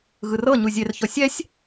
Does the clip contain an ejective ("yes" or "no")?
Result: no